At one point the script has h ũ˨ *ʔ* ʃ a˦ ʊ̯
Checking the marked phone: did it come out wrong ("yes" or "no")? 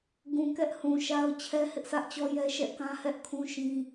yes